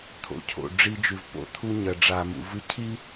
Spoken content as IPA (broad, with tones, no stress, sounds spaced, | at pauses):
t̪ʰ o̰˨ cʰ o̰˨ ɖ͡ʐ i˦ d͡ʒ ʉ˨ v p o̰˨ t̪ʰ u˦ ɲ ɐ˨ ɖ͡ʐ a˨ m ṵ˨ v ɨ˦ cʰ i˦